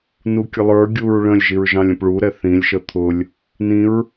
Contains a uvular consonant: no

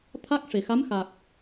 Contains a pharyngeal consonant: no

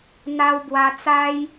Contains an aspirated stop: no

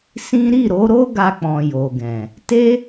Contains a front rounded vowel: no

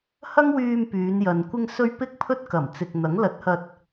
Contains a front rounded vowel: yes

